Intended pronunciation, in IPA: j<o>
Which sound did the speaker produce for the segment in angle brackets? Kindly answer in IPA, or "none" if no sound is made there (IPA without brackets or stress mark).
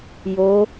o